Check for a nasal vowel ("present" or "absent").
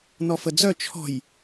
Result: absent